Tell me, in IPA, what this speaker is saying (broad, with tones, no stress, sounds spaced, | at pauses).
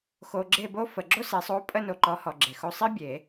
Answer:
x o˨ ɡ͡ǁ e˥˨ b o˥ f ə˨˩˦ ɡ͡ǁ o˥ s e˨˥ sˤ o˧˥˧ pʼ ə˥˨ n o˨ ǃ ɔ˨˥ h ɔ˨ ɡ͡ǁ e˨ x o˥˨ sˤ i˥ bʲ e˨˩˦